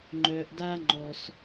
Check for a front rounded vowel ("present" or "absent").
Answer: present